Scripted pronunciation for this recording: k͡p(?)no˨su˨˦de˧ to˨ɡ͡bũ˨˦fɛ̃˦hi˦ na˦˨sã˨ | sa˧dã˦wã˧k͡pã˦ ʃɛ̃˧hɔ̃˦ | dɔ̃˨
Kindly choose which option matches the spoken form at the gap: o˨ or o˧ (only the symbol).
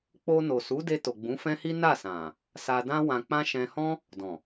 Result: o˧